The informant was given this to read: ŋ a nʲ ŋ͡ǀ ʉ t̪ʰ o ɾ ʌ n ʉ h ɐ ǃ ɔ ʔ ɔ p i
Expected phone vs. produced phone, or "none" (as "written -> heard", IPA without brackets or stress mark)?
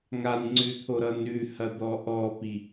ǃ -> d̪